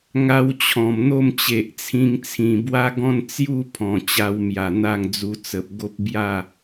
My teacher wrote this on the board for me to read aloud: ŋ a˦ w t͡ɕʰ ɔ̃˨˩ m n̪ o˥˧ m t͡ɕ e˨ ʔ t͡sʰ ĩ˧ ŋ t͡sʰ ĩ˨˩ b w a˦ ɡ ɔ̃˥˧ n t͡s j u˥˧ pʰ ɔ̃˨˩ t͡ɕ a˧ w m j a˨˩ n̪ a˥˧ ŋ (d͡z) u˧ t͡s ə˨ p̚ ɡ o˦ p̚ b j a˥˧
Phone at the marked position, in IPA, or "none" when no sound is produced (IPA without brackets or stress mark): d͡z